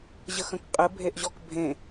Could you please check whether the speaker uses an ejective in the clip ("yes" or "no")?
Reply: yes